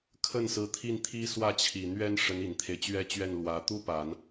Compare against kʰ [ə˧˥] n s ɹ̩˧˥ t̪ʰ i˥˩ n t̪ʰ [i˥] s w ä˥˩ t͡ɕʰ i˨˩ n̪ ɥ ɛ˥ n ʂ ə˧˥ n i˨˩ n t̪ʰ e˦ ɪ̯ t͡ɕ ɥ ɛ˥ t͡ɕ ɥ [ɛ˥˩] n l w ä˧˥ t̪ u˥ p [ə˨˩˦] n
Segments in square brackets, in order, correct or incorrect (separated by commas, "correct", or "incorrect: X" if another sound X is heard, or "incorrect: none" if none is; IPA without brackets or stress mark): incorrect: ə˥˩, correct, correct, incorrect: a˨˩˦